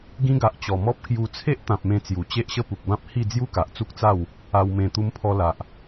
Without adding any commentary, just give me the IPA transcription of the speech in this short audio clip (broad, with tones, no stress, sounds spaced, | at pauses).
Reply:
ɡ ĩ˧ ɡ a˨ ʔ t͡ɕ ɔ˨˩ m ɔ˦ p̚ k j u˧ t͡sʰ e˦ ʔ t̪ ã˨ p̚ m ẽ˧ t͡s j u˨˩ t͡ɕ e˦ ʔ ɕ ə˦ p u˨ k̚ b ã˦ p̚ h i˥˧ d͡z j u˦ k a˨ ʔ t͡s u˦ k̚ t͡s a˥˧ w | a˧ w m ẽ˧ t̪ u˧ m pʰ ɔ˧ l a˨ ʔ